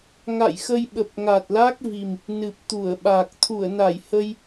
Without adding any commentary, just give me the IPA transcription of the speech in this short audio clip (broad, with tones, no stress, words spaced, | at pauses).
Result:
ŋa̰˧˨jxə˧jɓə˨˩p̚ ŋa˨˩t̚la˦˥k̚vi˨˩m | nɨ˨˩p̚t̪u˧˩ə̯ɓa˨˩k̚ t̪ʰu˧˩ə̯na˧˩jhə˧j